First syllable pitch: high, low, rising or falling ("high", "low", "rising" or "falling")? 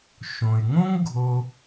low